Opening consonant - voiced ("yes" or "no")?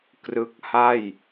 no